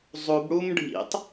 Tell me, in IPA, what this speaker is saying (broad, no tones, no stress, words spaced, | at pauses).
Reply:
zˤubɽum ɖʱḭtˤ